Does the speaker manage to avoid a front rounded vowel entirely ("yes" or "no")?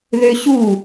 no